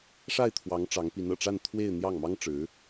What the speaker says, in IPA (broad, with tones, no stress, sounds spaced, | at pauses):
ʂ a˥˩ ɪ̯ t̪ʰ w ɑ˧˥ ŋ ʈ͡ʂ ɑ˧˥ ŋ p i˧˥ n ɤ̰˨˩ ʈ͡ʂ a˥˧ n t̪ʰ w e˥˧ ɪ̯ n̪ j ɑ˥˩ ŋ m ɑ˥ ŋ ʈ͡ʂ ɻ̩˧˥